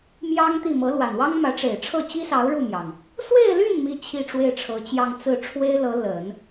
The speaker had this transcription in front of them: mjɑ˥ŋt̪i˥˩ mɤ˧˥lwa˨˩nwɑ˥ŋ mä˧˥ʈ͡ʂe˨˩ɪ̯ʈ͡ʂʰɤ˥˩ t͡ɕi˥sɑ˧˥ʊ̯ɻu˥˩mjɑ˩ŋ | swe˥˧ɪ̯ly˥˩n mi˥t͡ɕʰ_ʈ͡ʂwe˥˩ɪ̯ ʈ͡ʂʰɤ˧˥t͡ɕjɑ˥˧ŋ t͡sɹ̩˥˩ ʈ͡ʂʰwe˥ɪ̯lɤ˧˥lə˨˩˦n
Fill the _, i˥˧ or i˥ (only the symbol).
i˥˧